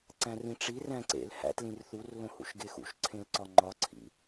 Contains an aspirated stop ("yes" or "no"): yes